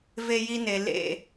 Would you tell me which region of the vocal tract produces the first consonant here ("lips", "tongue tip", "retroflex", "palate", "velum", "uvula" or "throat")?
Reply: lips